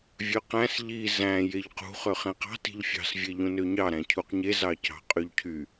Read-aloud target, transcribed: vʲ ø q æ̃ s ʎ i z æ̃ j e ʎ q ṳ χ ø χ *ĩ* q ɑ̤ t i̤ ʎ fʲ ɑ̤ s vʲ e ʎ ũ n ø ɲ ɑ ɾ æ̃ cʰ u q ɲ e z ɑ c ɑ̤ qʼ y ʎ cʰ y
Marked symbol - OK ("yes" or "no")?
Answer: no